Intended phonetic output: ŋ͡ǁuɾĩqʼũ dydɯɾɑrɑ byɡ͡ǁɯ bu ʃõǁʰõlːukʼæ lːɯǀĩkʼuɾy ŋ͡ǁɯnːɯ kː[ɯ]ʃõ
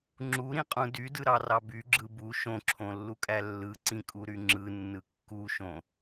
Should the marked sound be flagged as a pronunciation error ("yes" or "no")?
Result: yes